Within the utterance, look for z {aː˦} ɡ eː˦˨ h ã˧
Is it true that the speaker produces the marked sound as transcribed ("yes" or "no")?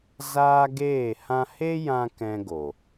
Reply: yes